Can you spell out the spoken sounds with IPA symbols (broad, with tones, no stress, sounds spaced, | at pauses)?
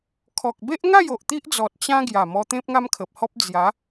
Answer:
kʰ ɔ˨ k̚ b e˦ ʔ ŋ a˥˧ j o˨ ʔ t̪ i˦ ʔ d͡z ɔ˨ t̚ t͡ɕ ã˦ ɡ j a˨˩ m ɔ˧ t̪ ẽ˦ p̚ ŋ a˦ m kʰ ə˨ p̚ h ɔ˦ p̚ d͡z j a˨˦